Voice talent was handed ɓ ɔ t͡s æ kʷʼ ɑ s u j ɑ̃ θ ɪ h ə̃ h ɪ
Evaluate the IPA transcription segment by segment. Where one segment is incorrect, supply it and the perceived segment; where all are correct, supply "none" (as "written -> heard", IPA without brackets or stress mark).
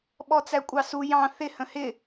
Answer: none